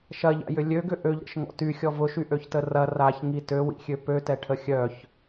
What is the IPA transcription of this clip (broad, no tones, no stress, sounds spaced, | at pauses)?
ʃ ɐ ʎ a̰ j ʏ lʲ ø ɡ ʏ ʔ ø ʎ ɾ ə̰ ʃ ŋ ɔ̰ t y xʲ ɔ v ʊ ʃ y ʔ ø ç t ə r ɐ r a ç ŋ i t ø w ḭ xʲ ø p ø t ɛ ʈʰ ə xʲ œ ç